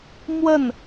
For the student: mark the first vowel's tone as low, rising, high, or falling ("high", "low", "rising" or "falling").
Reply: falling